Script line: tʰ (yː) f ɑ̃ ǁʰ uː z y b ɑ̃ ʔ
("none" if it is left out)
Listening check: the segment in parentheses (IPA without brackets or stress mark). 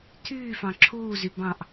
yː